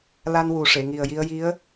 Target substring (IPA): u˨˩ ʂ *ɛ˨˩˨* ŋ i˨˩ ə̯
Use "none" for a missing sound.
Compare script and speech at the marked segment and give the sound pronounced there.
e˨˩˨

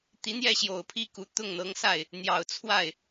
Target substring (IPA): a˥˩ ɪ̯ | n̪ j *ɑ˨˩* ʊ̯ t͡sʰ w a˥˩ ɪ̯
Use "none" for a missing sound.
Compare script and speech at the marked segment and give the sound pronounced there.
ɑ˨˩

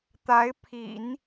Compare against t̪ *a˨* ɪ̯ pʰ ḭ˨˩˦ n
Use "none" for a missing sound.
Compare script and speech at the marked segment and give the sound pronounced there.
a˧˥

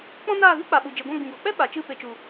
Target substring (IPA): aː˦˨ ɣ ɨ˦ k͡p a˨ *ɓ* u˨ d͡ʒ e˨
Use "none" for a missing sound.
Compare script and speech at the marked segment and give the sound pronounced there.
ɓ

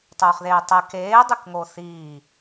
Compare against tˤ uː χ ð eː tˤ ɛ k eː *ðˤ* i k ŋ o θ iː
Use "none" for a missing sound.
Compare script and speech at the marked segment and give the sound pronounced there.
dˤ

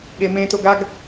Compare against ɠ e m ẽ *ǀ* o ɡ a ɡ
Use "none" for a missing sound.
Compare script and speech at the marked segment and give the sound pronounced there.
t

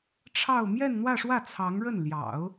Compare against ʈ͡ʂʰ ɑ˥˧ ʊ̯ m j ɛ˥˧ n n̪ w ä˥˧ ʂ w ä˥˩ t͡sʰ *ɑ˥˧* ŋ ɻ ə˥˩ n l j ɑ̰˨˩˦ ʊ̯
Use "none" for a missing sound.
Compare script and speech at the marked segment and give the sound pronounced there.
ɑ˧˥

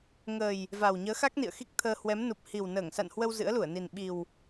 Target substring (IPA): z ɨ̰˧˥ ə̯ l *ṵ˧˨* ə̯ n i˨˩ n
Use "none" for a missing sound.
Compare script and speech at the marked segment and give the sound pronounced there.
u˧˩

